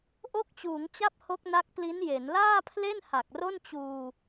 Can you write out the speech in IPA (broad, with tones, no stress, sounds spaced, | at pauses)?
ʔ o˥˩ k̚ t͡ɕ uː˩˦ ŋ t͡ɕ a˥˩ p̚ h o˦˥ k̚ n a˦˥ k̚ p l i˦˥ n j e˩˦ n l aː˥˩ pʰ l e˥˩ n h a˨˩ k̚ r o˥˩ n t͡ɕ uː˧